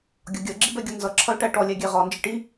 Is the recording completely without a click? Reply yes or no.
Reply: no